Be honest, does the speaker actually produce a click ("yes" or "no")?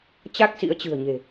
no